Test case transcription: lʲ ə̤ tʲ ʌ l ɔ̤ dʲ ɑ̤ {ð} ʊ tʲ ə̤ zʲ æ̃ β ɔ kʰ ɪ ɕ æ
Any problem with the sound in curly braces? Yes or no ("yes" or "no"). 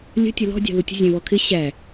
no